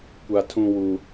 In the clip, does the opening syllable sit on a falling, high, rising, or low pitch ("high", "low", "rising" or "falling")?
high